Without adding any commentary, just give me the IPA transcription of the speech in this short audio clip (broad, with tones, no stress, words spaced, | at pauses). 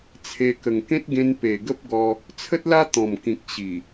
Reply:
t͡sʰe˧ kə˨˩ŋkẽ˦t̚ɡẽ˧n pe˨˩ɡə˦p̚ɡɔ˧ | t͡sʰə˦t̚la˦ t̪ɔ̃˨˩mkĩ˨k̚ ɕi˨˩